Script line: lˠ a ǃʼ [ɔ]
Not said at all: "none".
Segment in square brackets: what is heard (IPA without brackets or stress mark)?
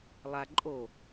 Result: o